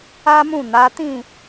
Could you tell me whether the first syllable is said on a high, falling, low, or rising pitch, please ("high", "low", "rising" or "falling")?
high